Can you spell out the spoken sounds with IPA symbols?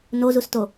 n o z u s t o

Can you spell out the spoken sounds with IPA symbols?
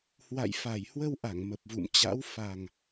h w a̰˧˨ j f a˨˩ j h w ə˧ w ʔ a˧˩ ŋ m ə˨˩ p̚ v ṵ˧˨ m t͡ɕ a̰˧˥ w f a˨˩ ŋ

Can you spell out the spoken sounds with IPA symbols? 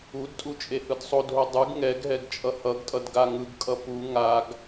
u d tʼ u t͡ʃʼ e h ɯ d sˤ o d ɦ o dˤ ɯ ɡ ŋ ɛ ɡ ɦ ɛ ɡ t͡ʃʼ ʌ h ʌ ɡ tʼ ʌ d ɡ a ŋ ɯ ɡ kʼ ʌ p u ŋ a ɡ

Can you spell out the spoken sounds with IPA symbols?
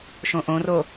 ʃ õ ʔ õ r o

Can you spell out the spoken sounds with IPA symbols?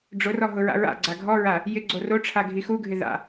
ɖ͡ʐ ʊ r ɔ ɦ ʊ ɹ a̰ ɹ a̰ ɡ͡ǀ a ɡʱ ɔ ɹ a | j ɪ ɡ͡ǀ o r o ʈ͡ʂʰ a ɡʱ i x u ɡʱ ɪ ð a̰

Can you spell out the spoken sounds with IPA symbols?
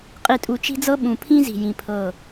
qʼ i˨ tʼ u˨ t͡ʃ i̤˦ d͡z ɤ˦ ɓ ũ˨ pʰ ĩ˦ z i̤˨ j ĩ˨ pʰ ɤ˦˨

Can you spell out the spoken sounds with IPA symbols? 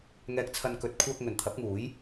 ŋ ɛː˧ k̚ t͡sʰ ɐ˧ n k ɵ˨˥ t̚ kʷʰ aː˧ k̚ ŋ ɵ˨˩ n t̪ʰ ɐ˨˥ p̚ ŋ uː˨˥ j

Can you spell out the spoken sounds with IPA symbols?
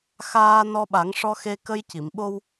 x aː˧ n ɔ˧ ɓ a˨˩˦ ŋ ʂ ɔ˧ x e˧ k ə˧ j c i˨˩˨ m ɓ o˧ w

